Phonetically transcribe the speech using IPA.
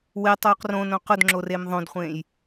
wɪtˤoːq rõnõ qʊdŋ͡ǁorem ðˤõdχʷẽːj

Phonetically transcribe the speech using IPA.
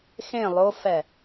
xẽ lˠofɛ

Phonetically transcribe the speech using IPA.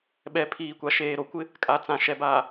ɓɛ˨pʰiː˨kʷa˨ʃeː˨ ɾo˨kʷɪ˦ | kʼa˨t͡sã˨ʃɛ˨baː˨

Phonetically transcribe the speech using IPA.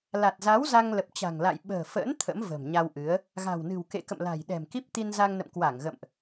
la˨˩t̚za˨˦w za˧ŋlə˨˩p̚ t͡ɕa̤˨˩ŋla̰˧˨j ɓə̤ː˨˩fə̰ː˧˥n t̪ʰə̰˧˥mvə̤ː˨˩mɲa˧wʔɨ˨˦ə̯ | ɣa̤˨˩wnɨ̤˨˩wkḛ˧˨kə̰˧˨m la̤˨˩jɗɛ̤˨˩m ki˦˥p̚t̪i˧nza˧ŋnə̰˧˨m kwa˧˩ŋɣə̰˧˨mʔ

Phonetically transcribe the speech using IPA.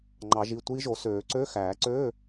ŋ͡ǃɑ˨˩˦ʒi˩˧˩tʷiː˦˥ʒo˨˩˦ søː˨˩˦ǀø˧˥˧ xæː˨˩˦ǀøː˧˥˧

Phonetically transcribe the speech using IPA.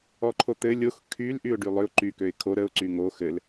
ɔǃʰot̪ɘ lʲox kʰyl ʔyʊ̯ɖylˠʏʊ̯ ǃy køɪ̯kʰo ɾəʊ̯ ǀyŋo xɘl

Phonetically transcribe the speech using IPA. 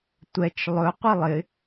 tʷɛt͡ʃ lˠɵ qʷilˠɪ

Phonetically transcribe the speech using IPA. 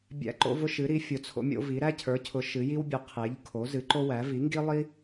bʲæ̰˦ǃo̰˦ vʊ˦ʃɨ˩˥ɾi˩˥ fʲʊ˩˥t͡sʰo̰˦mʲo̰˦vi˩˥ ɾæ˦cʰə˞˩˥cʰʊ˩˥ ʃɨ˩˥ ji˦wbʲʊ˩˥ qʰe˩˥ʎ kʰo˩˥zɨ˩˥ ǃo˦wæ˩˥ vi˩˥ŋɡi˦lˠi˦

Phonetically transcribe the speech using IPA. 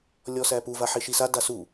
lʲɔsæpu vaħiʃisa dasu

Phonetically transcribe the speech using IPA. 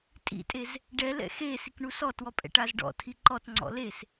tʼḭtʼez | ɖɛlɛ̰ xe sikɳusɔtwɔ pʼɛ̰ʈazɖɔ̰tʰi ǃɔtŋ͡ǀɔ̰ les

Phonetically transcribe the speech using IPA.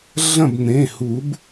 ɮɐ̃˥˨b n̪ẽ˩˧˩ hu˨˩˦b

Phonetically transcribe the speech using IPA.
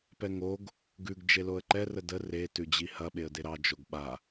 pɛŋoɡ | ɡʉɡ d͡ʒeloə̯ǃɛ rədə re tʉd͡ʑihɐ ɓeə̯deɾɑ d͡ʒoɡɓa

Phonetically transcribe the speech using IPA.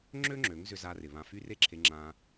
ŋ͡ǁø˦ŋ͡ǁø˨˦ŋzʏ˧ za˧ rɪ˨ βã˧fy˦ re˦ǁʰe˧ ŋ͡ǁã˧

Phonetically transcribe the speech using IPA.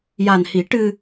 ja˨˩nhi˨˩˦ ʈɨ˧

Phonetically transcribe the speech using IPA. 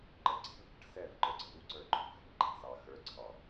ǃəǀe̤v bə̤ʈsɛv ǃə˞ɡ͡ǀəju ǀə˞ǃʰo̤x ɛ̤nǃʰe̤sɑ xə˞ ǀʰɑ

